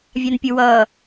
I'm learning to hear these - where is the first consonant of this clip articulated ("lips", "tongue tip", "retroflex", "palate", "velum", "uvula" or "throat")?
lips